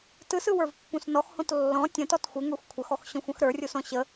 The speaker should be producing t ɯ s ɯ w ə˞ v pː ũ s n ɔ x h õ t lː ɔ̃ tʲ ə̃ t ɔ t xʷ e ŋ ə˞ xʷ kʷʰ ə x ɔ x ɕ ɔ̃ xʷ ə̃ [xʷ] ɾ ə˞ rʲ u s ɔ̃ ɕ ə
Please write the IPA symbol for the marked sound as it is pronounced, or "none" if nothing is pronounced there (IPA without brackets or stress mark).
x